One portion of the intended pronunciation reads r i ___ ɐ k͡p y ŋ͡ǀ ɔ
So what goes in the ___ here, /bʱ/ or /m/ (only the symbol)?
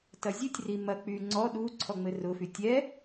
m